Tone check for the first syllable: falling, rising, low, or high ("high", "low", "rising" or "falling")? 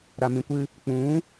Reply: low